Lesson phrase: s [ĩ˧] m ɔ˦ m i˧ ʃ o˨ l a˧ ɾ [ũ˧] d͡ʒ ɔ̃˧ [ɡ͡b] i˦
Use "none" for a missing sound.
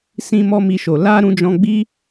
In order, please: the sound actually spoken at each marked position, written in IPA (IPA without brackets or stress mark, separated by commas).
ĩ˦, ũ˧, ɡ͡b